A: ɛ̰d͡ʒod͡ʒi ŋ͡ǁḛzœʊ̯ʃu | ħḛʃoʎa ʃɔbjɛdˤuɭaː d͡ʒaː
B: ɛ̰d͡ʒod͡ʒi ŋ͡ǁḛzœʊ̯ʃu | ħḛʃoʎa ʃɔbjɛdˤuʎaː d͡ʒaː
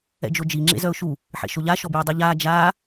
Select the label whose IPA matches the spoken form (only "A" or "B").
B